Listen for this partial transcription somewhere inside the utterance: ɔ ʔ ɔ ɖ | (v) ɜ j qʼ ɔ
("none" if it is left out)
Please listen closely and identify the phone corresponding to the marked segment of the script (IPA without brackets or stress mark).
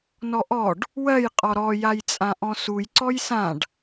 w